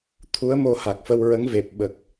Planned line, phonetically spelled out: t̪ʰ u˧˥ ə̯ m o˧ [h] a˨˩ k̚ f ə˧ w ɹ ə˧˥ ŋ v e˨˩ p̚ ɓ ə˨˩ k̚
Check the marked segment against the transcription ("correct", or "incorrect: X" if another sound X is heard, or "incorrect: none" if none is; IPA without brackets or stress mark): correct